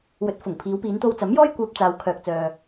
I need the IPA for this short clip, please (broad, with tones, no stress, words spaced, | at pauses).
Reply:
wɵ˨˥t̚ fʊ˨˩ŋ pʰiː˨˧wpiː˨˧nt̪o˧w t͡sɐ˨˥mjɔː˥j kʷœː˧p̚t͡saː˨w kʰœː˨k̚t͡sœː˨